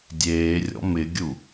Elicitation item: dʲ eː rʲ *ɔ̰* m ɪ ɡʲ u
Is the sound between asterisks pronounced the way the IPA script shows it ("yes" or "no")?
yes